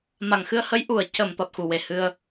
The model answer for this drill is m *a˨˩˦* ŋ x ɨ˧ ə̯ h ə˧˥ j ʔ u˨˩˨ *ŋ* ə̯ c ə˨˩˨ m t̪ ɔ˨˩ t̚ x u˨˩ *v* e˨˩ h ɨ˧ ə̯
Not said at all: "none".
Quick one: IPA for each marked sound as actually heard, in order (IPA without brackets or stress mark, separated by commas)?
a˨˩, none, w